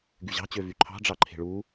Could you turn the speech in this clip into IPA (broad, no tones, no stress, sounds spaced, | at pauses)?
ɡ y ʑ ɑ̤ t͡ɕ ø v y ǃʰ ɑ̤ ɖ͡ʐ ɑ ǃʰ e̤ ɭ u